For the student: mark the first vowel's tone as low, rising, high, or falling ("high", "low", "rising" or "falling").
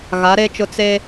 rising